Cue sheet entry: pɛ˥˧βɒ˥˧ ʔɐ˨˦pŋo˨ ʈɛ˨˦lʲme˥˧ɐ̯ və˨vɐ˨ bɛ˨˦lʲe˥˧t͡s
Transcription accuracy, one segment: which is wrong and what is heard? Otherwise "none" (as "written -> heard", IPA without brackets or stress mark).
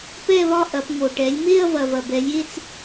ə˨ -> ɐ˨